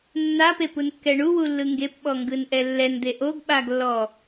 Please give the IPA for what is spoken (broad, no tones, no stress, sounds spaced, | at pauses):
nː a p e p u n kː ɛ ɳ u w u lː ɯ ŋ ɡ e p ɓ ɔ ŋ ɡ ɯ n ʔ ɛ lː ɛ n d̪ e ʔ o ɡ ɓ a ɡ lː ɔ